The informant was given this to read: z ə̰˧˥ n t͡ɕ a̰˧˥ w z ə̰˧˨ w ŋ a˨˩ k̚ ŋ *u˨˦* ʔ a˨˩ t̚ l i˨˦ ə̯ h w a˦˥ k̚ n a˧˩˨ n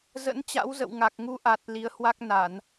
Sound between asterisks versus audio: correct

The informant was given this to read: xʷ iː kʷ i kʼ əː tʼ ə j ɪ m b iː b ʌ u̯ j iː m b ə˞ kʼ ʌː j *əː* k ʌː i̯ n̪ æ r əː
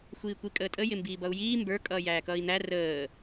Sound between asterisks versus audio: incorrect: æː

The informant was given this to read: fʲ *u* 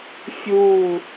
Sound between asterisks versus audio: correct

